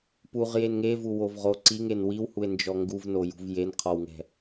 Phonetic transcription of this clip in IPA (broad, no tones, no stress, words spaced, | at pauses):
puʁjen ŋevuwovʁo ǀiŋen wiwhue̯nd͡ʒɔ ŋɡuvnojṳv jenqʰɔwŋɛ̤